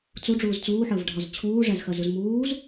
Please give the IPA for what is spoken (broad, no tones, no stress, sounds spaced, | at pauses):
t͡s u ɖ͡ʐ uː z t͡s uː ħ əː v ɖʱ ɒ z t͡ɕʰ uː ʐ æ z x ɜ z u z m uː z